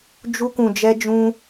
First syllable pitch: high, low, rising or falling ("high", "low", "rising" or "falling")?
high